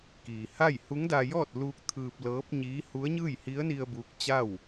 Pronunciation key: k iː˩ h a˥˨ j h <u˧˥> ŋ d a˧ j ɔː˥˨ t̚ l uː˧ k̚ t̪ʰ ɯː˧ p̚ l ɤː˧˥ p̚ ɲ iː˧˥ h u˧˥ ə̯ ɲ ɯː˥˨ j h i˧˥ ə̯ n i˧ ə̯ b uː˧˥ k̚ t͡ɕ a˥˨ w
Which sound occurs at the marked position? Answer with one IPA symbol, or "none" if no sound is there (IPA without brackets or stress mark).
u˧˥